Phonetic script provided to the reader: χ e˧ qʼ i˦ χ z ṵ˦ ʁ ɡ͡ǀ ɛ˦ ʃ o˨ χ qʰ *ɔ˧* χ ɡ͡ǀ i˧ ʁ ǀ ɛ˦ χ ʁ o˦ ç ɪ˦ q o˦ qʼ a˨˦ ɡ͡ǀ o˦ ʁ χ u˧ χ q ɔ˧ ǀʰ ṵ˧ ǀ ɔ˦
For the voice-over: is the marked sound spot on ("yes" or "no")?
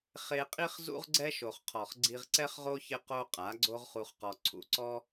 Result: no